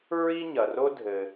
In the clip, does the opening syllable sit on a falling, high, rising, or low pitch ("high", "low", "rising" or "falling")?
high